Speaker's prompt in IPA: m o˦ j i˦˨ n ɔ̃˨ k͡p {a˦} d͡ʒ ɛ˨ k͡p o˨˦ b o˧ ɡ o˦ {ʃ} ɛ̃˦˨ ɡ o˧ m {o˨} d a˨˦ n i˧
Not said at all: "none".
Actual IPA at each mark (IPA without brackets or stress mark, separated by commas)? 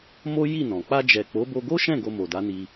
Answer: a˧, ʃ, o˨